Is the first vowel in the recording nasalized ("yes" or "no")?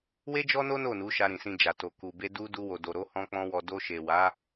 no